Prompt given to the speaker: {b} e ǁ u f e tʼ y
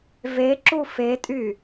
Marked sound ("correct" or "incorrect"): incorrect